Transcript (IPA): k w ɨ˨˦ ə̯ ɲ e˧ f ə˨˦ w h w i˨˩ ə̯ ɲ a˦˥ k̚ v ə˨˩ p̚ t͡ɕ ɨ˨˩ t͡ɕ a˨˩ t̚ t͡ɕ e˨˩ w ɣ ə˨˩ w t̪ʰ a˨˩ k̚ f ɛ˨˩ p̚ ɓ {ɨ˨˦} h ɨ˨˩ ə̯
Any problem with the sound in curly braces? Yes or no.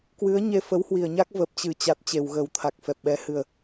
yes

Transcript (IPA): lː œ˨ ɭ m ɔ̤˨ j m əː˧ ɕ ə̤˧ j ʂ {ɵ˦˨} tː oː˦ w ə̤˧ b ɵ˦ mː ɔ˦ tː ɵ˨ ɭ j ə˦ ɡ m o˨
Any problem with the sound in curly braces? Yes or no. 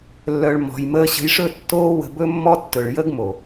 no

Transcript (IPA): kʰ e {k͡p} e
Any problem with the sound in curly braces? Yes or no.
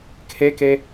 yes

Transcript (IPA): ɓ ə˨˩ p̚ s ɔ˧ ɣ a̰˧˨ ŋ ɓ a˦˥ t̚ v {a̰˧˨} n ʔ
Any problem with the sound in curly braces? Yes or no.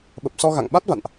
no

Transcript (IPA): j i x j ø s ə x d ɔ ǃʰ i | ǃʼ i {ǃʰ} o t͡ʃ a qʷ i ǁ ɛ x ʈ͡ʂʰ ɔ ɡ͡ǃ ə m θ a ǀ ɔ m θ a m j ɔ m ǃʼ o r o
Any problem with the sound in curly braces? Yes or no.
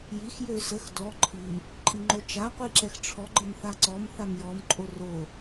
yes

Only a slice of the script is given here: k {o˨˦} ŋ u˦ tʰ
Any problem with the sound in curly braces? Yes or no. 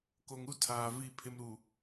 yes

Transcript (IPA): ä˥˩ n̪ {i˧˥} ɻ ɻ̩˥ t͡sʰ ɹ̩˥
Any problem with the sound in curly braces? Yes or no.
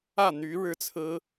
yes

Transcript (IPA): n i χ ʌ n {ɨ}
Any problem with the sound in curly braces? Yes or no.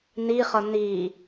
yes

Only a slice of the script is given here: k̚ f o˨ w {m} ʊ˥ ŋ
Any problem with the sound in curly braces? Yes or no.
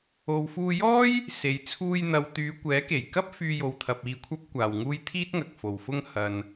yes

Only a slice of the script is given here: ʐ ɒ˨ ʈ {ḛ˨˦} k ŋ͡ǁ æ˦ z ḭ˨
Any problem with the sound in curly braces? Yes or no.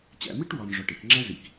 yes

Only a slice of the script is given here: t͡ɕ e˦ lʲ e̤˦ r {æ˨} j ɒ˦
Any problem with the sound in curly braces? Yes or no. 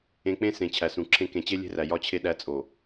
no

